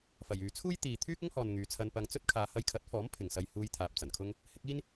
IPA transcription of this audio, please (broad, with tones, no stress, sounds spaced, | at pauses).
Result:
f ɐ˨˩ j yː˨ t͡sʰ uː˥ j t̪ iː˨ t̪ʰ yː˥ k̚ ʊ˥ ŋ h ɔː˨ n ŋ yː˨ t͡sʰ ɐ˧ n p ɐ˧ ŋ t͡s ɵ˥ t̚ kʰ aː˨˧ h ɐ˧ j kʰ ɐ˨˥ t̚ f ɔː˨˥ m pʰ ɪ˨ ŋ s ɐ˧ j h uː˧ j t̪ʰ aː˨ p̚ t͡s ɐ˨˩ n kʰ ʊ˥ ŋ | h ɪ˨˥ k̚ iː˥ n